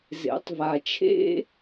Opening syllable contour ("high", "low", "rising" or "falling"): rising